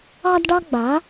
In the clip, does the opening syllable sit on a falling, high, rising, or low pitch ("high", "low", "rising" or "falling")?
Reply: high